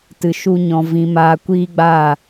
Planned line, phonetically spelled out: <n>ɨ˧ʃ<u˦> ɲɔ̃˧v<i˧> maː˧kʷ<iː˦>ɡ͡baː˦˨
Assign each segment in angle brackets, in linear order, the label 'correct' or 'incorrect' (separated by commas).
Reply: incorrect, correct, incorrect, correct